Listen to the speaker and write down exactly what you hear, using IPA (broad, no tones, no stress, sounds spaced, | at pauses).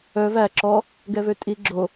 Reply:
œ v æ ǁ ɔ | ɡ ɛ v ø tʼ i ɡ͡ǁ o